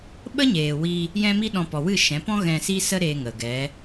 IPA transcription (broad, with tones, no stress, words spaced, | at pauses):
ɓə˦ɲeː˨wi˧ | jɛ̃˦mi˦ɗɔ̃˧ pɔ˨wɨ˦˨ ʃɛ̃˨˦pɔ̃˦ ɣɛ̃˧ si˦sə˦ɾeː˧ŋə˨ ɡɛ˨˦